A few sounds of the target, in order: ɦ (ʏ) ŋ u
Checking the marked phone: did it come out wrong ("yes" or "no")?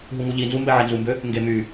yes